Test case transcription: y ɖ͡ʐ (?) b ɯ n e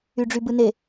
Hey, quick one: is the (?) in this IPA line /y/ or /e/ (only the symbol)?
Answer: y